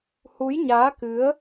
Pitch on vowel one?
rising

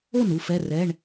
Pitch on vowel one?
falling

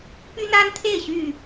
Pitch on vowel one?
high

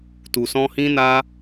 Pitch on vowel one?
low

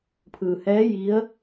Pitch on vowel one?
low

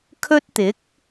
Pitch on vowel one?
high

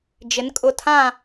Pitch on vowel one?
rising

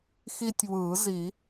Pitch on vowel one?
high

